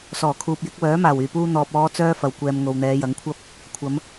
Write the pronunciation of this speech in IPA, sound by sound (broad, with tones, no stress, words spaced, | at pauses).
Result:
sɔː˨˩kʰuː˨p̚jɪ˨˥k̚ wœː˨˥maː˨˩wyː˨˩puː˧ n̪ɔː˨p̚ ɔː˨˧t͡sœː˧ fɐ˨wkʷɛː˨m ŋo˨wn̪ɛː˨˧jɐ˨˥ŋkʷʰɐ˥p̚ | kʷʰɐ˨˧m